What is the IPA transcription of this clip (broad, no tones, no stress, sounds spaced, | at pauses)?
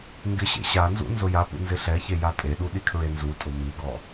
ŋ ɡ ɪ ɕ ḛ ɕ a n z ṵ n z ʊ j a p ṵ n z ɪ ɬ ɛ ç e j a tʼ e ɗ u ɗ i kʰ ɹ e n z u tʼ ʊ m i ɡ ɔ